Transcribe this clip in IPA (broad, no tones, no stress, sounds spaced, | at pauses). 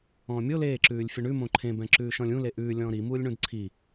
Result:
ɔ̃ː mʲ o l eː ǁ ʉː lʲ fʲ ʌ ɳ ʉ m õ ǃʰ ẽ b ɛ̃ ǁ ʉː ʃ ɔ̃ lʲ ũ l e ʔ ʉː lʲ ɔ̃ː ɾ i m uː lʲ ɳ ũ d ǀʰ i